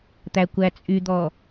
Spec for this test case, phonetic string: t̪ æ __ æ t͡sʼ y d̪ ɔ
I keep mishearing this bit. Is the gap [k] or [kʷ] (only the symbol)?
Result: kʷ